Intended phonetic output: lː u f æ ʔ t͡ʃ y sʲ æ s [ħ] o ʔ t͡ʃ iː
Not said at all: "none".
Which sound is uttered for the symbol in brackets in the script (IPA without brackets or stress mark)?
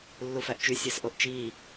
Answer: ʔ